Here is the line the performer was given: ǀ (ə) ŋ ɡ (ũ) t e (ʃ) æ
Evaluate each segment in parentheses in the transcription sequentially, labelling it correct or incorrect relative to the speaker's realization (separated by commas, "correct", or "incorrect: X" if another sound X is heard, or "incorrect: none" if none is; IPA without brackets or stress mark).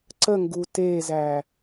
correct, incorrect: u, incorrect: z